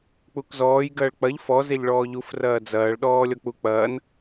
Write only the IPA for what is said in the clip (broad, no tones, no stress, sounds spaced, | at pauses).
k͡p u k z ɔː j ɡ ɐː ɭ k͡p ɐ ʎ f ɔ z e ʎ ɭ ɔː ʎ u f r ɐː d͡z ɐː ɭ ɗ ɔː lʲ ɔ k͡p u k͡p ɐː n